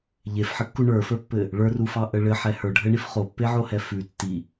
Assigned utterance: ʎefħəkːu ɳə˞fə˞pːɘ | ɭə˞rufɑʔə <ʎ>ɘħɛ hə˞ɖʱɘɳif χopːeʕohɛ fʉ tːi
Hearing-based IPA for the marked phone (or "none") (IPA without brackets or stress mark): ɭ